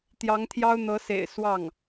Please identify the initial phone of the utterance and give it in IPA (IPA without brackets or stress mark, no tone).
t̪